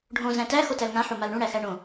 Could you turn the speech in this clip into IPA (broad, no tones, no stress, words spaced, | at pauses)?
ɖʱõ zæ̃tæ xotælŋã ħomalɳũ ɽæxæɳõ